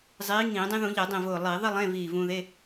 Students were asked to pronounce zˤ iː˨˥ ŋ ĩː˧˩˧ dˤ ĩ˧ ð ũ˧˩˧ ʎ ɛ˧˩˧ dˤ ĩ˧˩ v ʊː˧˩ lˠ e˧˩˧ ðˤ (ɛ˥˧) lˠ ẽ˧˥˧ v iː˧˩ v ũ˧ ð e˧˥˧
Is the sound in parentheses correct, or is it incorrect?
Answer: incorrect